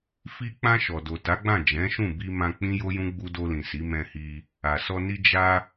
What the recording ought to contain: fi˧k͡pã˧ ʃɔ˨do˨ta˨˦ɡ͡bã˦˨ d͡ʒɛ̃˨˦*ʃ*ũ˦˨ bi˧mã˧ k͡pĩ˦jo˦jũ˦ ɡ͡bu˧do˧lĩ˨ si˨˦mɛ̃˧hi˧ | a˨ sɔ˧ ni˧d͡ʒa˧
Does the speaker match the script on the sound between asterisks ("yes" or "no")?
yes